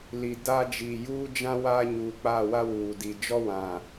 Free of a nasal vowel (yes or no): no